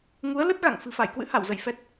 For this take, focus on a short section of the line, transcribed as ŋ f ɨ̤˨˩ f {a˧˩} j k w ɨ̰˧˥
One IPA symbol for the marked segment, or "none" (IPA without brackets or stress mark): a˧˩